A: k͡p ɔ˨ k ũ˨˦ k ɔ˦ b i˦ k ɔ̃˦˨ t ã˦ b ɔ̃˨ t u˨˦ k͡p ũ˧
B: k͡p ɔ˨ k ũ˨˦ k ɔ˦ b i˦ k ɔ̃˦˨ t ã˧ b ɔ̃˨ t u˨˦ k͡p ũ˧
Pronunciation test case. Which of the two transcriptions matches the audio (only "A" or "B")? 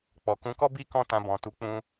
B